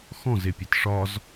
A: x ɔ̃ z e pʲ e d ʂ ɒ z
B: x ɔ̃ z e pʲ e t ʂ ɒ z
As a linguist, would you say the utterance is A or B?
B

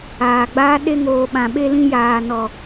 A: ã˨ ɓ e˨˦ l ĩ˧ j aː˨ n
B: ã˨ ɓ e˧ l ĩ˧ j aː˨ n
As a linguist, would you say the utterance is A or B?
B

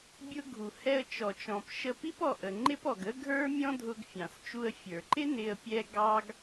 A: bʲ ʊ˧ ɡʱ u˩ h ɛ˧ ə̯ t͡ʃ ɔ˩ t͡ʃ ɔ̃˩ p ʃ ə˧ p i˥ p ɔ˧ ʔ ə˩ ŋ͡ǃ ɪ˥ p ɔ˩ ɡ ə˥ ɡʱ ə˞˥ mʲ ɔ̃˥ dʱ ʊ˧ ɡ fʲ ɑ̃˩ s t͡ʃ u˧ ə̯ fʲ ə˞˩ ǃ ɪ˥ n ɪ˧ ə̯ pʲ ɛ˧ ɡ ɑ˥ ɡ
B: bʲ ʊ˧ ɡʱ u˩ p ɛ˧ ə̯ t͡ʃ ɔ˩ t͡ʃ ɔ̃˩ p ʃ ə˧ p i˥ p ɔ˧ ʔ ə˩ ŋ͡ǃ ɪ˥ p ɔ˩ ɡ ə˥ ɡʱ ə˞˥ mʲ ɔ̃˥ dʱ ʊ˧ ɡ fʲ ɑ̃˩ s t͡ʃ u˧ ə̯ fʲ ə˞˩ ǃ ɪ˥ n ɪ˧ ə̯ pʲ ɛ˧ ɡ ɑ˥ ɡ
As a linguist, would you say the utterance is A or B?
A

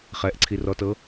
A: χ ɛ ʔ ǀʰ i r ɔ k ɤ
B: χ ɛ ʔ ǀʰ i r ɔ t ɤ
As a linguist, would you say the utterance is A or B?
B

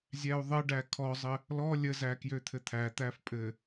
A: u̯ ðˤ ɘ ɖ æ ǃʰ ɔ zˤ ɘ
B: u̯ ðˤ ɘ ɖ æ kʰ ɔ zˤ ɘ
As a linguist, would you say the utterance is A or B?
B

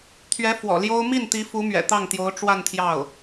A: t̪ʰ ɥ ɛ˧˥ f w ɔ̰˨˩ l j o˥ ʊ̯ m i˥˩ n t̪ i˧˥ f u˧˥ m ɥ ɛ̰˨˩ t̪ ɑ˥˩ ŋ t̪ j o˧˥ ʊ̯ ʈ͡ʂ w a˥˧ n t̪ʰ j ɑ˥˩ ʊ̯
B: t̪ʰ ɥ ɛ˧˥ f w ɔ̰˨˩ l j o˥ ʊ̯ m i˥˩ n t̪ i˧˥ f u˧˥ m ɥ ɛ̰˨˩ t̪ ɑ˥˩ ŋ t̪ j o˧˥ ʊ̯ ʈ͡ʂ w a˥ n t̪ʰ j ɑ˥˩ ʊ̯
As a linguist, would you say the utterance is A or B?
A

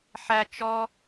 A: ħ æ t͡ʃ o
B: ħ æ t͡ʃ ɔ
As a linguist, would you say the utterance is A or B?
B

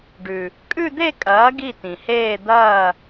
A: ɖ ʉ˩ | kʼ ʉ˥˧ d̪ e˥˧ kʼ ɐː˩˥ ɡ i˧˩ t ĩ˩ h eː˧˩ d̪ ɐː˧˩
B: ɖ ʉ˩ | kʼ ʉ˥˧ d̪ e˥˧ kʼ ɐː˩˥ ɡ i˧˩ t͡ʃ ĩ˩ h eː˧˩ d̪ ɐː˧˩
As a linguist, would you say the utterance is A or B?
A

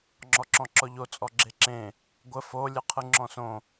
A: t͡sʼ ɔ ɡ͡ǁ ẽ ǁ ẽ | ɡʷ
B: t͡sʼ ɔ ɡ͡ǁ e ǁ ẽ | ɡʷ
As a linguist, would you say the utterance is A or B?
B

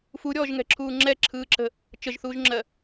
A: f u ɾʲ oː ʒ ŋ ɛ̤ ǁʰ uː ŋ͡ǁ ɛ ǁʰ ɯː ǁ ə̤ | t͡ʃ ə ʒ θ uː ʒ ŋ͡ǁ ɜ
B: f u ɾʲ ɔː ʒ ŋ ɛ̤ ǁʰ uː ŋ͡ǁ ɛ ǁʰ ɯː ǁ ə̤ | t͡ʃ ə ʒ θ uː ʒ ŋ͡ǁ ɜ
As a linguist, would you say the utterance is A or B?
B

